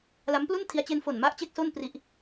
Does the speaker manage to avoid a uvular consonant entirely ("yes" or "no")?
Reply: yes